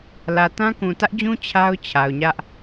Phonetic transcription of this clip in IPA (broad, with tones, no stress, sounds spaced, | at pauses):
l ä˨ t ã˦ k ũ˨ t ä˦ ʔ d͡ʑ ũ˦ t͡ɕʰ a˦ ʊ̯ t͡ɕʰ a˨ ʊ̯ ɲ ä˦ ʔ